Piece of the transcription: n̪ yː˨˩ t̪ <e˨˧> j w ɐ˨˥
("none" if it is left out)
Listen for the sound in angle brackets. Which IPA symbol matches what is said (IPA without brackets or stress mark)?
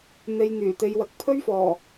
e˨˧